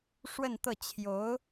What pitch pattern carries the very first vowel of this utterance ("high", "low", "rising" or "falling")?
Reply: falling